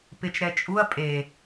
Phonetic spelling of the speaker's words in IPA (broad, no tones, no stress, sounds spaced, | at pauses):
p ɪ t͡ʃ ɾ ɛ t͡ʃʼ u ɐ̯ pʼ e